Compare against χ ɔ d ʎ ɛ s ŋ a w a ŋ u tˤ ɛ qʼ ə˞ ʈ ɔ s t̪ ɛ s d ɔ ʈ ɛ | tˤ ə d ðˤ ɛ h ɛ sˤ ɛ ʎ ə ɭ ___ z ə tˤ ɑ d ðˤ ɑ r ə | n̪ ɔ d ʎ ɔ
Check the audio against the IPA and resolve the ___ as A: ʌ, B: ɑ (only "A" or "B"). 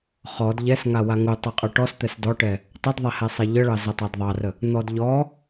B